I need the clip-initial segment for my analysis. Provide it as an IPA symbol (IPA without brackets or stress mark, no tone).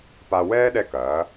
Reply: p